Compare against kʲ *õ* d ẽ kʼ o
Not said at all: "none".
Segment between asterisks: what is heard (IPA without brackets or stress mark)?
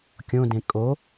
õ